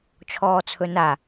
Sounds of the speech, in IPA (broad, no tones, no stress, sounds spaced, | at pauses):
t͡ʃʰ ɔː t͡sʰ ɵ n a